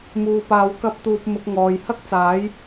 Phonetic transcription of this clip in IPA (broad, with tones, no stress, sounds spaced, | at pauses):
m uː˨ p aː˨˧ w k ɐ˧ p̚ t̪ uː˨ p̚ m ʊ˨˥ k̚ ŋ ɔː˨ j h ɐ˥ k̚ t͡s aː˨˥ j